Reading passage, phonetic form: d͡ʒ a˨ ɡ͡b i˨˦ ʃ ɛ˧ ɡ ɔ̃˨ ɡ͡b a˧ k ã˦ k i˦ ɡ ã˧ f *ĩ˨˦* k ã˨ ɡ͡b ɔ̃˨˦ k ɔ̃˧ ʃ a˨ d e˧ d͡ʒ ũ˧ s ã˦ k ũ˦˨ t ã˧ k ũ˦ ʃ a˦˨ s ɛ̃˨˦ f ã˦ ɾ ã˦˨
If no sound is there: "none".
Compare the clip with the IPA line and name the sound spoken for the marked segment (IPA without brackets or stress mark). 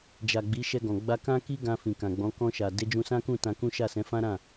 ĩ˨